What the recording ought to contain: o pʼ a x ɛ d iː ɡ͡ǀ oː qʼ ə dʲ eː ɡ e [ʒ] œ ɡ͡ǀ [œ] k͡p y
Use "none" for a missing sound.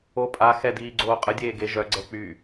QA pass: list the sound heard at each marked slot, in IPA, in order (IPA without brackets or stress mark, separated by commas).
ʒ, ɛ